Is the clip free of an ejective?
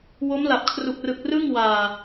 yes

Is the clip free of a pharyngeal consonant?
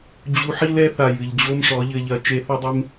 no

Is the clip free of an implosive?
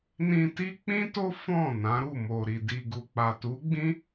yes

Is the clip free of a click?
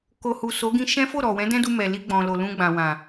yes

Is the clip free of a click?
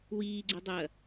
no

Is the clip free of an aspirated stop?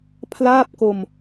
no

